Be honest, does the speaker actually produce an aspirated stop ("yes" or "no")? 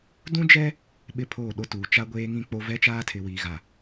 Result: yes